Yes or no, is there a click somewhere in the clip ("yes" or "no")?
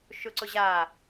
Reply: yes